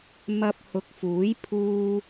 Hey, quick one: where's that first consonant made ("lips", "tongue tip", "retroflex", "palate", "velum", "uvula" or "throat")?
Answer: lips